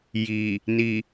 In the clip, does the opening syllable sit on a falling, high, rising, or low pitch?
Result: low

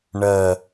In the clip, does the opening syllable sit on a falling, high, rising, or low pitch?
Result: low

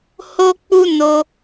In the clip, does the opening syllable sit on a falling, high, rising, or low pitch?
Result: high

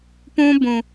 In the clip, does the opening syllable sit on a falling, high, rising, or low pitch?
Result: high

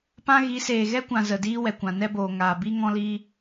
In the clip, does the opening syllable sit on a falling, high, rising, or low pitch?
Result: high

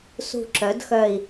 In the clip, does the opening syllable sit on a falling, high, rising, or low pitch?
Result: low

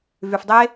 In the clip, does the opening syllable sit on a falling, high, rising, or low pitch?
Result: low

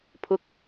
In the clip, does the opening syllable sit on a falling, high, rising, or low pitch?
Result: rising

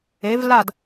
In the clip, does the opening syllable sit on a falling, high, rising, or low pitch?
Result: rising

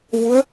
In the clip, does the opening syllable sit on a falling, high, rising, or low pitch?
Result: rising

